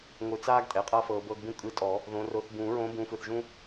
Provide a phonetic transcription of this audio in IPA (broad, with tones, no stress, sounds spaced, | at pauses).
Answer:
ŋʷ ɯ˨˩˦ t͡s aː˥ ɡ tʼ ɛ˩˧˩ qʼ a˥ f ɤː˨˦ b ɤː˥ ɡ b ũ˥ kʼ ɯ˨˦ tʼ ɔ˨˩˦ | ð õ˨˦ r o˨˦ θ b ũː˨˩˦ ɹ õː˨˦ b ũː˨˦ f ɯ˩˧˩ θ ʒ ũ˥